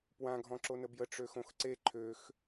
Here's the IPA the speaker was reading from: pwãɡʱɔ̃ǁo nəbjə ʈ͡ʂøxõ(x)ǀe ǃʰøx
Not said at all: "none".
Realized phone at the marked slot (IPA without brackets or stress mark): x